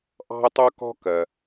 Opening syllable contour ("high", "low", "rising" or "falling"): high